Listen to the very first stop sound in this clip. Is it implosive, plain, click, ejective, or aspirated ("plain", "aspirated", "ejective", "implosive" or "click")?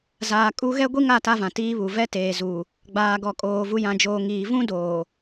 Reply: ejective